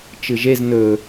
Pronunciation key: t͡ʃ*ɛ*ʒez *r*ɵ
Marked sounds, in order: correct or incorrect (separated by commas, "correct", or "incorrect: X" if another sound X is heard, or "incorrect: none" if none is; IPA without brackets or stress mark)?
incorrect: ɨ, incorrect: n